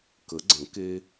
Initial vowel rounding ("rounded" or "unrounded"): unrounded